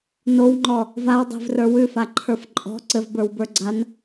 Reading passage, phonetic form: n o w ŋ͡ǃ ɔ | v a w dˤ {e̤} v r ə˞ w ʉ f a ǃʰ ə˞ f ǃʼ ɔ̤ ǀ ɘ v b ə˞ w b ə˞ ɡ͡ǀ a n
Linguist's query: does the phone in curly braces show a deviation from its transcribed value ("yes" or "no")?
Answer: no